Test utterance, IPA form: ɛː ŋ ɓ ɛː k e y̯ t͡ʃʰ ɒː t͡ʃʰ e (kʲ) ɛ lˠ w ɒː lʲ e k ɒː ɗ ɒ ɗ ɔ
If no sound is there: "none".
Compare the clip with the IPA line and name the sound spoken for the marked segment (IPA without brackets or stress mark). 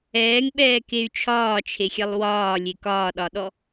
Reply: xʲ